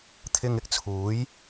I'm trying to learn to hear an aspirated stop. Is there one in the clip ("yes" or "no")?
yes